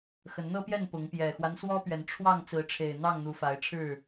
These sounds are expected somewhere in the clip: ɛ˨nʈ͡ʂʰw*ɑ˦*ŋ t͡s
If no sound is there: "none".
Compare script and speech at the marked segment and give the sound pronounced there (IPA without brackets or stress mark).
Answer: ɑ˥˨